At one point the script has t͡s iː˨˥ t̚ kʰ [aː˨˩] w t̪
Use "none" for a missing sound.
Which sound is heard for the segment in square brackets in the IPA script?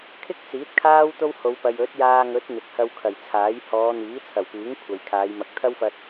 aː˥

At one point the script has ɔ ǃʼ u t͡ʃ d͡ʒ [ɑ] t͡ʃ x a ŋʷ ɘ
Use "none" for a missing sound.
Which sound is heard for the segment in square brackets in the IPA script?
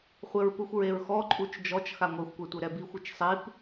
ɔ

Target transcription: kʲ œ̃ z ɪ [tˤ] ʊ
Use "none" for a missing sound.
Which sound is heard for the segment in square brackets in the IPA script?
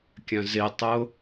tˤ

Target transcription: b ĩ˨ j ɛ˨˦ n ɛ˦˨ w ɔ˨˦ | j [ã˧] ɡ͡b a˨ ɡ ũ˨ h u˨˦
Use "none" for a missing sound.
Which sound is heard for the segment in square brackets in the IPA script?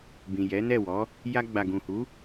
a˧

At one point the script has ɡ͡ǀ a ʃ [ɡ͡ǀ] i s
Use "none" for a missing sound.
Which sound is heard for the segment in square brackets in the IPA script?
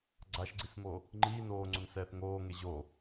ɡ͡ǀ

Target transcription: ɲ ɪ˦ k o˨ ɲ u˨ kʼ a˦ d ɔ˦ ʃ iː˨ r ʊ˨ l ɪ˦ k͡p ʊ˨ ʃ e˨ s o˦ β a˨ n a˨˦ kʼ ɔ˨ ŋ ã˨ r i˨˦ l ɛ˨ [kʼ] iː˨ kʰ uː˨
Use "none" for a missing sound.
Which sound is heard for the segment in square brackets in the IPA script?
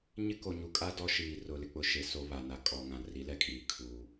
kʼ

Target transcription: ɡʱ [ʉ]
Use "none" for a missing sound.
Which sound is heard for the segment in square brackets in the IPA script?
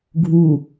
u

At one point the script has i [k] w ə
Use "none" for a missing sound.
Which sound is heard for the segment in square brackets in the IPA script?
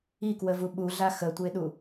k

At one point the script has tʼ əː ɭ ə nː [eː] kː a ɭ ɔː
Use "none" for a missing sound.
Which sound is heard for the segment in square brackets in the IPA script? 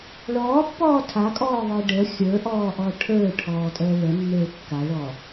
eː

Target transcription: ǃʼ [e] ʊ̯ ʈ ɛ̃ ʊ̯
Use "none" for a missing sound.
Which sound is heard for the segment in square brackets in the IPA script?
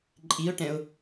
i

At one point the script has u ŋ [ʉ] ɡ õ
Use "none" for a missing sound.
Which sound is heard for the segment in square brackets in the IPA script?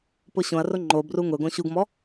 ʊ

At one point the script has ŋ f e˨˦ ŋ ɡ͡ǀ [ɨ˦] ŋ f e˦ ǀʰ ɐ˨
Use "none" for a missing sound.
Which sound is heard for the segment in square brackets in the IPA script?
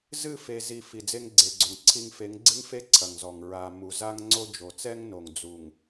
ɨ˦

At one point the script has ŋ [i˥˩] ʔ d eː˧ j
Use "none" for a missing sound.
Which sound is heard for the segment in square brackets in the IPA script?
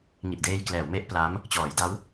i˨˩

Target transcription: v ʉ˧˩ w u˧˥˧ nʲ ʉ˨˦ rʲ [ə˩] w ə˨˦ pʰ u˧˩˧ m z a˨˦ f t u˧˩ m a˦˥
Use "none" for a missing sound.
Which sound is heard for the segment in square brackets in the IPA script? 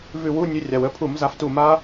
a˩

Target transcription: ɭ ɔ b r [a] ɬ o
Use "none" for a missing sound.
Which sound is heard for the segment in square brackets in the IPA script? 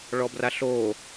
a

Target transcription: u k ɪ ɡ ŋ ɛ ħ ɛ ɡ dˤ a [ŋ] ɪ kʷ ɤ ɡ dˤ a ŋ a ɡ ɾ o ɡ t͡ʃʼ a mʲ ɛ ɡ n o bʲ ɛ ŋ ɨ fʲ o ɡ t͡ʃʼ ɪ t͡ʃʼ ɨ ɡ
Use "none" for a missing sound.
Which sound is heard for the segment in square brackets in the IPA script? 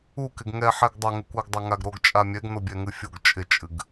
ŋ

